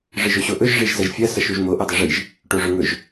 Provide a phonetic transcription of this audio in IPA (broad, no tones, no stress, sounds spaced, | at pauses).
ʐ ɨ ʒ ɵ ɕ o ʔ ɵ ʒ ʐ i ʒ z ɐ ʒ fʲ ɐ s ɐ ʃ u ʒ m o ʔ u dˤ ɨ ʐ i ʒ | ʈ o ʐ ɵ ŋ ɵ ʒ